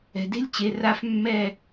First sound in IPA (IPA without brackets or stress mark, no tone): ɛ̤